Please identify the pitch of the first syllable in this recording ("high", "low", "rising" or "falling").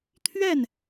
falling